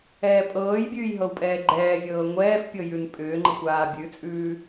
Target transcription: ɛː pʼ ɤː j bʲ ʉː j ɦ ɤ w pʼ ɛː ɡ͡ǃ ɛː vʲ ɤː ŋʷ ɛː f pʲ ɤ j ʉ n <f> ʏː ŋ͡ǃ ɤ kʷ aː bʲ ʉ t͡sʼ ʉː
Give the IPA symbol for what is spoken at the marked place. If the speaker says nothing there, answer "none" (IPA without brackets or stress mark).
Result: pʼ